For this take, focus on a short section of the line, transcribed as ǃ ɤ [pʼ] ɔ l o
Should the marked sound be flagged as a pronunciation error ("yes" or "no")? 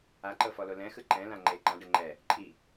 yes